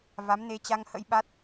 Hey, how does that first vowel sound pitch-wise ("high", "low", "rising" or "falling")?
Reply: rising